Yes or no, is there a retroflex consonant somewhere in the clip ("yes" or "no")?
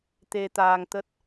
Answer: no